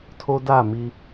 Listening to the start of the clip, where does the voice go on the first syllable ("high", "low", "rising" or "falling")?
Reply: high